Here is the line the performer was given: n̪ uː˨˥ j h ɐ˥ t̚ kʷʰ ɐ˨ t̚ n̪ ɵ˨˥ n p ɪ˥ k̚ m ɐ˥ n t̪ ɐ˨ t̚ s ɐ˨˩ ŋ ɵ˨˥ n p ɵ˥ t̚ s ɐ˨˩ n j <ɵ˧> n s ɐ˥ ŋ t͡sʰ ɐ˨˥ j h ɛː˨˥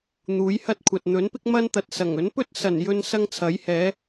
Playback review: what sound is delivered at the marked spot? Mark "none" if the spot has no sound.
ɵ˧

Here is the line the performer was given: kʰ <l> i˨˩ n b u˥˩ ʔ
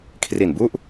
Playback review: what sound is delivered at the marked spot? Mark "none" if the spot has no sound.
r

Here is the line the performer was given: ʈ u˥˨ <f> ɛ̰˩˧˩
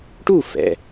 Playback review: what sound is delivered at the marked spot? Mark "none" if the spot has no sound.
f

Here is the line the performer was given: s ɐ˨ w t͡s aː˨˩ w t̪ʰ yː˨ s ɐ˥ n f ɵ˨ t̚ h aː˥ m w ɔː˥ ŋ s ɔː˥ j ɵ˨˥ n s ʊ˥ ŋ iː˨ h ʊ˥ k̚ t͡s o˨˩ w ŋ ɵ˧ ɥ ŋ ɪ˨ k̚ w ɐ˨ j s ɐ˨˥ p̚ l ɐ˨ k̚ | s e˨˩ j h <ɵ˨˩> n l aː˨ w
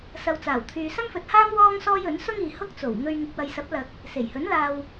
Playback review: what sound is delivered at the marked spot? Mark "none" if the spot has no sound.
ɵ˨˥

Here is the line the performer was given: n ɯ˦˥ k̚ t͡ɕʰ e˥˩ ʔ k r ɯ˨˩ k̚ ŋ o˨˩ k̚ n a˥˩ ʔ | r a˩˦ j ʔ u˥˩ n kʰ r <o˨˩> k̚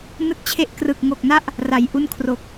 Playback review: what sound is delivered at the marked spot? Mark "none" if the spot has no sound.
o˨˩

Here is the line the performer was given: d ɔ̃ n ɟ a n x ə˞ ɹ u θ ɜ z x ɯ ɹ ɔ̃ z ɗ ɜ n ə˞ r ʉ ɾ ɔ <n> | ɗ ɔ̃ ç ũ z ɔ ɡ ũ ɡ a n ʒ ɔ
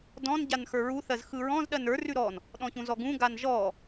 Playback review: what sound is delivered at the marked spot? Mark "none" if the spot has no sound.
n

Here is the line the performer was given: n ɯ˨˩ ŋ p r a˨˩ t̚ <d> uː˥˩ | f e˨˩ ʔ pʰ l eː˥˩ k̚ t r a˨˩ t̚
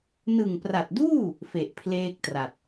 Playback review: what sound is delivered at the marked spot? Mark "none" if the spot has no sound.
d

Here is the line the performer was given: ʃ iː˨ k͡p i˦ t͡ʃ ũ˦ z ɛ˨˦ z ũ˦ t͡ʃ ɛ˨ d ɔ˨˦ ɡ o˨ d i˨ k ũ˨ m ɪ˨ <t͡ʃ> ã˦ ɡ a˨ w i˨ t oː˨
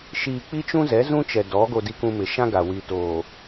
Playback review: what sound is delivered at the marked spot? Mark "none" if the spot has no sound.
ʃ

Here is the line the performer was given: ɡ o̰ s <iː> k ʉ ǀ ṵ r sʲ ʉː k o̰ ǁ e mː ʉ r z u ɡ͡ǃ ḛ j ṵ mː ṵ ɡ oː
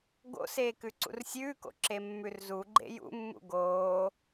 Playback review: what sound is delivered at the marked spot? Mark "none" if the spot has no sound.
eː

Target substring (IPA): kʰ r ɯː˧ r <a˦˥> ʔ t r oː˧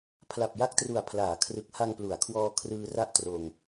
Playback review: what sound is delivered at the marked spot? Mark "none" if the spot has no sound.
a˥˩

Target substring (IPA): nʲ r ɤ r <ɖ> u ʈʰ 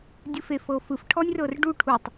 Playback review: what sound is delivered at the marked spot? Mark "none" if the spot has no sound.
ɖ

